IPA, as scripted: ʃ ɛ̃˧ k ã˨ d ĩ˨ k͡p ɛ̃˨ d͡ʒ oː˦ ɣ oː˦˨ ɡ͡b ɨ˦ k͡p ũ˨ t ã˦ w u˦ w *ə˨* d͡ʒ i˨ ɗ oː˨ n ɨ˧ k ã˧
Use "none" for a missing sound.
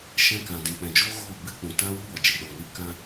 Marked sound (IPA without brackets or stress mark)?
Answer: ɔ˨